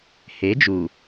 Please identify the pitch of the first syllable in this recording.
rising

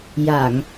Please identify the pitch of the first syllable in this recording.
low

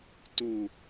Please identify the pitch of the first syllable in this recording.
low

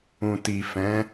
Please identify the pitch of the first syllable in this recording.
low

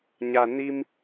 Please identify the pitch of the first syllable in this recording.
low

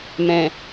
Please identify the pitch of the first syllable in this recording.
low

